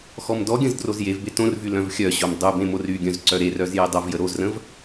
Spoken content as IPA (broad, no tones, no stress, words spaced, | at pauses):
xɔmdɔɡʲə̃z drozjevbe tõrvy lœ̃vxʲœɕom dˤybẽ moryɡʲœ̃z ǀœɾerœz jedˤovjə ɾozrə̃v